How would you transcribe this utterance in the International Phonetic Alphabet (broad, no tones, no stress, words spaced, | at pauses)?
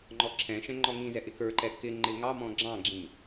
ŋ͡ǃɔǁʰɛ̃ʃɛ̃ ŋ͡ǃɔŋĩzɛ ʔɪkə˞ǃɛ kɪ ŋ͡ǃɪŋɑmɔ̃ ɡ͡ǁɑ̃ɡ͡ǁĩ